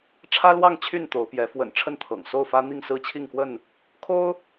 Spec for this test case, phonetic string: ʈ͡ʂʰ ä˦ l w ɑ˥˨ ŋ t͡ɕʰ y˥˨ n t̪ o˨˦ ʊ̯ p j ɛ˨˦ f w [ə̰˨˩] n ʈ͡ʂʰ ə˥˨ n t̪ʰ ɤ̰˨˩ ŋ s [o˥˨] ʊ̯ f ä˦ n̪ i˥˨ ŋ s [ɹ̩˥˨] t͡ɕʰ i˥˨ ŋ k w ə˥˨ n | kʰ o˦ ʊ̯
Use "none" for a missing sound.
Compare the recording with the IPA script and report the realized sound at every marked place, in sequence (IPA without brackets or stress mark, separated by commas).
ə̰˨˩, o˥˨, ɹ̩˥˨